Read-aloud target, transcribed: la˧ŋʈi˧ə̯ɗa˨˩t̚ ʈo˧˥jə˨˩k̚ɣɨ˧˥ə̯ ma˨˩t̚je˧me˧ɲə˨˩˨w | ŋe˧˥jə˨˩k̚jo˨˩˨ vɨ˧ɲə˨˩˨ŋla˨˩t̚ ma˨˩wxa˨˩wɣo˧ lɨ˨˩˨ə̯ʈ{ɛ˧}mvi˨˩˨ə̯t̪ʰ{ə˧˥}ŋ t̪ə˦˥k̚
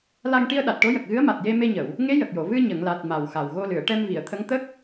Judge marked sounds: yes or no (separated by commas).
yes, yes